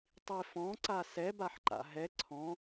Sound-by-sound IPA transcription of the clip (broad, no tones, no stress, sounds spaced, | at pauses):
tˤ i f ɔ̃ ǀ a s ɛ b a ħ ǃ a̰ ɦ ɛ ǀʰ ɔ̃